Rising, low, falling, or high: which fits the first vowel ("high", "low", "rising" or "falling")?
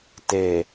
low